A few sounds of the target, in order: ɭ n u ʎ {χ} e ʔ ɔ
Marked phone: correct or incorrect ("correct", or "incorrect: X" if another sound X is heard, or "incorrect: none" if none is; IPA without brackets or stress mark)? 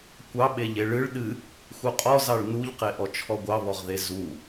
incorrect: q